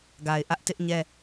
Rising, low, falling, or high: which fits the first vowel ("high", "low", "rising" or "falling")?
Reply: low